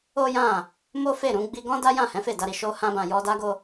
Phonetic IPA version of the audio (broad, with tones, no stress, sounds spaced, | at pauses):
o˦ j ã˦˨ | m o˦ f e˦˨ ɾ ũ˨˦ ɡ͡b i˧ ɡ ɔ̃˦ d a˦ j ã˦˨ h ɛ̃˨˦ f e˦˨ d a˧ ɾ i˨ ʃ o˧ h ã˦ b ã˧ j ɔ˦ d a˦ ɡ o˦